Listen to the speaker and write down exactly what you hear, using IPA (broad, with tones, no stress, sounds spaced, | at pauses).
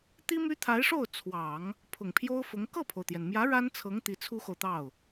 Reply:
t̪ i˥ m y˥ t̪ʰ a˧˥ ɪ̯ ʂ o˥˩ ʊ̯ t͡sʰ w ɑ˨˩˦ ŋ | pʰ ʊ˨˩ ŋ pʰ j o˥ ʊ̯ f ʊ˧˥ ŋ k ɤ˥˩ pʰ o˩ ʊ̯ t̪ j ɛ˩ n m j ä˧˥ ɻ a˥ n t͡sʰ ɤ˧˥ ŋ t̪ i˧˥ t͡sʰ u˥ x o˨ ʊ̯ t̪ ɑ˥˩ ʊ̯